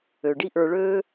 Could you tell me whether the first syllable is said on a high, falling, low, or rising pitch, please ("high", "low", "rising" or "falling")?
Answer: low